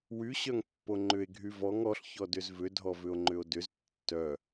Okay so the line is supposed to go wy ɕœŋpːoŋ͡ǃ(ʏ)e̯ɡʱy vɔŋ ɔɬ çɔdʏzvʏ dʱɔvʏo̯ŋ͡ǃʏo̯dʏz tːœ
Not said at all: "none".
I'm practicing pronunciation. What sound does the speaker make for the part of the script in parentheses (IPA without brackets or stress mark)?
ʏ